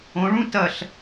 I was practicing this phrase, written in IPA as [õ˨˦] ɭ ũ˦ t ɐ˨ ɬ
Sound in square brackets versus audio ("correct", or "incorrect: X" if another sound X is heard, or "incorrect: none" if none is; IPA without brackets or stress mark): correct